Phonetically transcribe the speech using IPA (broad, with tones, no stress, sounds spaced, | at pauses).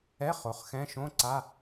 ɛ˧˥˧ χ o˩˥ χ x ɛ̃˧˥˧ ʃ õ˧˥˧ ǀ a˧˥˧